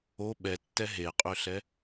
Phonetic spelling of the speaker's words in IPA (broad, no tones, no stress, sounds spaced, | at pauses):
o ɓ ɛ tː ɛ ɦ e qʼ ø ɬ ɛ